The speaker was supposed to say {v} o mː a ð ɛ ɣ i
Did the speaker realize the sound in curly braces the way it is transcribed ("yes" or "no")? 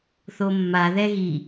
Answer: no